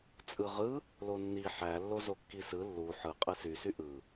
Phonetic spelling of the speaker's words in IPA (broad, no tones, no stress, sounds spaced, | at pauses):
t͡sʼ ɯ ʁ ɯ | l o nː i ħ æ lː o z o kː i s ɯ lː u ħ ɯ qʼ ɯ s y s y ʔ ɯ